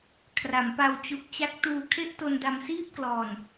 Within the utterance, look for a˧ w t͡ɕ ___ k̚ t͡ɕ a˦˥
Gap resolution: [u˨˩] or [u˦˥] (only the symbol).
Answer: u˨˩